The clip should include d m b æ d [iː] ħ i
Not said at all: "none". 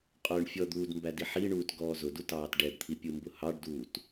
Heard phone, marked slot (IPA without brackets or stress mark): i